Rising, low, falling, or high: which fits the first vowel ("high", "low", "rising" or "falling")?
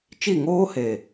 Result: falling